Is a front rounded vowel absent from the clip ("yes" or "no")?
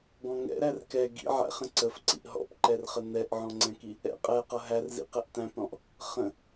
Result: yes